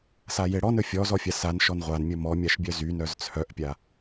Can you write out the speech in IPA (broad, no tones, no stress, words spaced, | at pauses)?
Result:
sajeɽɔn ɵfʲɔzɔfʲa sanʃɔn ʁʷanmʲɵ mɔmʲaʃbʲœ zy nœzt͡sʰœʔpʲa